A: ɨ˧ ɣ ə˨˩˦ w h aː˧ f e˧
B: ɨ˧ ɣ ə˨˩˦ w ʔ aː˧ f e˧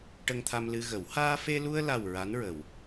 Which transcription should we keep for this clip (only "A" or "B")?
A